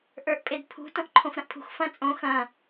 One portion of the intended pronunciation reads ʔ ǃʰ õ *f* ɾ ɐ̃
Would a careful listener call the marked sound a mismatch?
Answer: no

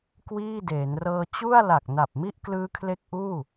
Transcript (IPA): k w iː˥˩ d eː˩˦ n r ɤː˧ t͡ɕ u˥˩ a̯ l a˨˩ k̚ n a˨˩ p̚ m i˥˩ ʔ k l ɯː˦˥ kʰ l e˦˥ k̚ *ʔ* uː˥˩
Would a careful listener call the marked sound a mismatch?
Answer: no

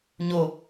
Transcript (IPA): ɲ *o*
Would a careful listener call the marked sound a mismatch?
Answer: no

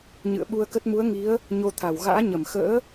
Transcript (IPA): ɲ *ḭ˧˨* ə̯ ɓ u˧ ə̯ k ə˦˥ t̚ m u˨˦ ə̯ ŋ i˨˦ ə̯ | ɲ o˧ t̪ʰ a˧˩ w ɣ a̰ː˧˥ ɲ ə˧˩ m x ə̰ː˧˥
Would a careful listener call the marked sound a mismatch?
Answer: yes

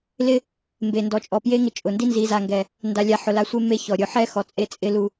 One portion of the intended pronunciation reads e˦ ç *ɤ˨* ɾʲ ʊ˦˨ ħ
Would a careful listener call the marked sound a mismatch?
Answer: yes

